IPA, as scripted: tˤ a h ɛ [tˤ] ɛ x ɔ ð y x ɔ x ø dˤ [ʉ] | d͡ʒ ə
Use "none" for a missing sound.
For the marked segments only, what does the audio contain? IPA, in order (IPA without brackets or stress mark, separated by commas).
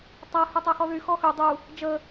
tˤ, u